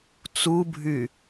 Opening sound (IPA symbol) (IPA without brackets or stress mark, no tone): t͡s